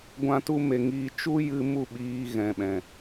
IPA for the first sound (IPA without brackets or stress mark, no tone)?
ɡʷ